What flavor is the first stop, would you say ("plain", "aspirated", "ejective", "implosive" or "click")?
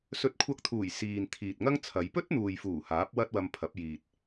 plain